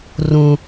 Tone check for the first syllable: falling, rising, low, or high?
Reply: low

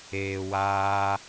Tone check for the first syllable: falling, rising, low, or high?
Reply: low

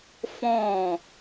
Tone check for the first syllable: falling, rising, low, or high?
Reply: falling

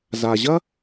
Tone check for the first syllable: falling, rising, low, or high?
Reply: low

